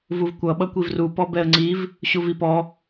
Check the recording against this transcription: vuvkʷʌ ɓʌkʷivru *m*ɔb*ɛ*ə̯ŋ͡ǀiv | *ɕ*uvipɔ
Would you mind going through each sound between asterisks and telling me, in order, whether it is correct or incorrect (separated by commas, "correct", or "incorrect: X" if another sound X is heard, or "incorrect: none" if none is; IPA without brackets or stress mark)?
incorrect: p, correct, correct